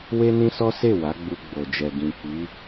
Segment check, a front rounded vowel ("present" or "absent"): absent